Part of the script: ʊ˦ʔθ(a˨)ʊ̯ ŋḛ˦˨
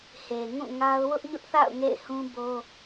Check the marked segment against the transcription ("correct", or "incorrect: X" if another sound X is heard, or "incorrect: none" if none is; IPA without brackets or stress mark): incorrect: a̰˦˨